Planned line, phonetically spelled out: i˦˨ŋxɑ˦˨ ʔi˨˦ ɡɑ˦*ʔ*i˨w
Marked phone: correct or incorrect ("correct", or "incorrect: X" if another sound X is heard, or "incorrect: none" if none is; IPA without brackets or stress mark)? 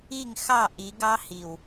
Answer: incorrect: h